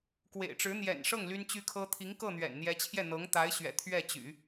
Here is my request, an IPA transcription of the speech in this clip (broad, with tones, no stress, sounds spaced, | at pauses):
k w ḛ˨˩ ɪ̯ ʈ͡ʂ ɻ̩˧˥ n̪ j ɛ̰˨˩ n ʂ ɤ˥˩ ŋ l y˥ n t͡ɕ y˥ kʰ ɤ˥ t̪ʰ i˧˥ ŋ k ɤ˥˩ n̪ ɥ ɛ̰˨˩ n n̪ j ɛ˧˥ t͡ɕʰ j ɛ˥˩ n̪ ɤ˧˥ ŋ t̪ a˧˥ ɪ̯ ɕ ɥ ɛ̰˨˩ t̪ʰ ɥ ɛ˥˩ t͡ɕ y̰˨˩˦